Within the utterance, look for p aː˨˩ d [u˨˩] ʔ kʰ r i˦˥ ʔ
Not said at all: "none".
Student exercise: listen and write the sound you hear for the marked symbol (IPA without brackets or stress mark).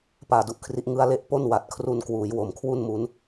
u˥˩